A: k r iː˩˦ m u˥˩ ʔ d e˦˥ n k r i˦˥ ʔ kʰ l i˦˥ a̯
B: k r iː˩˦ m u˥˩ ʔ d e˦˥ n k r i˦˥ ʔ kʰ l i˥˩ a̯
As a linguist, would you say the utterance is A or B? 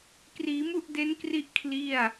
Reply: B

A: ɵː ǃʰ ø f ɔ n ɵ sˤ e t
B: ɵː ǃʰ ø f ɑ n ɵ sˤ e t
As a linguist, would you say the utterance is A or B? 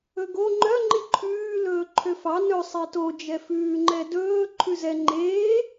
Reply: B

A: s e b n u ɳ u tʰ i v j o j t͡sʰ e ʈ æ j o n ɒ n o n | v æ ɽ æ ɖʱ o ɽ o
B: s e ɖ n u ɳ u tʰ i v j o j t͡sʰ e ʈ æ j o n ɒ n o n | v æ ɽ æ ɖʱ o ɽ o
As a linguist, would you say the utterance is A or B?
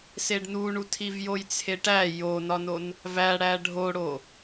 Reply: B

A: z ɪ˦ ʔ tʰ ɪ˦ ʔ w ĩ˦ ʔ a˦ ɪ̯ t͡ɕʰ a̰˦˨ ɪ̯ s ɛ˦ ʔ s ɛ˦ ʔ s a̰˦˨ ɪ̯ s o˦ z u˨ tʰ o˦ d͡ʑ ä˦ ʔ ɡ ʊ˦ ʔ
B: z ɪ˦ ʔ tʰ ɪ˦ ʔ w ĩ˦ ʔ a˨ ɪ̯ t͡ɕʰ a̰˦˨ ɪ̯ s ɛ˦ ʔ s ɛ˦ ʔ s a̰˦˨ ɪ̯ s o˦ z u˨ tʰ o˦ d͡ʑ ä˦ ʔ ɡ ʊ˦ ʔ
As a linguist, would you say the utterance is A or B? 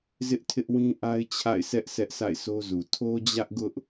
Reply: A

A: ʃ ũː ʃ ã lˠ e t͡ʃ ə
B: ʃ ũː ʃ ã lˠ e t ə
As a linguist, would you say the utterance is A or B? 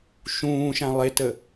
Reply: B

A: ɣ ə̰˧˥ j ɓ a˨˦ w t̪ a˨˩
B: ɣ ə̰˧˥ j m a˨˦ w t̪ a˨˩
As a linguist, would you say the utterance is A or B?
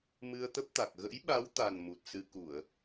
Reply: A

